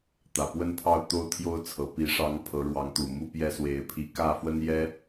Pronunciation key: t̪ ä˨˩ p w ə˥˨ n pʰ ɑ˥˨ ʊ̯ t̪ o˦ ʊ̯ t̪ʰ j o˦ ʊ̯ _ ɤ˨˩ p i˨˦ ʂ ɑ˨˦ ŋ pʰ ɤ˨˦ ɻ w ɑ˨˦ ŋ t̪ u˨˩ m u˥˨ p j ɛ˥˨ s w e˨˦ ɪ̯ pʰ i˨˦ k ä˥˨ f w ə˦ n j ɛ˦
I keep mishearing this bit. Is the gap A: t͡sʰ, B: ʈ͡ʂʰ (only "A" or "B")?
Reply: A